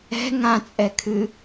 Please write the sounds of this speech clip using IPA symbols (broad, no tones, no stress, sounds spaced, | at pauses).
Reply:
ɛ̤ ŋ ã t͡sʼ ɛ kʰ ɨ